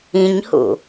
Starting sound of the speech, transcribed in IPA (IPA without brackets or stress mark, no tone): ĩ